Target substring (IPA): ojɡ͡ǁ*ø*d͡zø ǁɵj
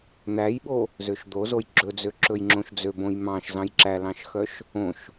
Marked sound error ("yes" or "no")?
yes